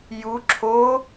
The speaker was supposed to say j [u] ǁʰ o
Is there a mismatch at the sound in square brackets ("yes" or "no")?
no